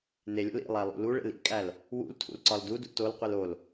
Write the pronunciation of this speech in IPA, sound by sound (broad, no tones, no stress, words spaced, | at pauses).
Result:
nelʲo̰l ḭ lˠælˠṵluɭḛl ḭkʼæl | wṵltʰṵl ǀɒldudṵ tolqʷil ol